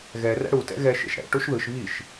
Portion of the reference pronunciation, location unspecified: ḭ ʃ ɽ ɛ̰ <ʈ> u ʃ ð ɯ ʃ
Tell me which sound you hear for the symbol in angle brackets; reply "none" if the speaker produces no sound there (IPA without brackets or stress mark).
ʈ